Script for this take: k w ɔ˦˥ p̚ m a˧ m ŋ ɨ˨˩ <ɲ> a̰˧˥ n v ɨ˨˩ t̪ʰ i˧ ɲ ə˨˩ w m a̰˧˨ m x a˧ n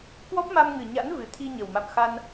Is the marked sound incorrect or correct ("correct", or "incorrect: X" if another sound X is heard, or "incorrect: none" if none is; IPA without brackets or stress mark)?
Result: correct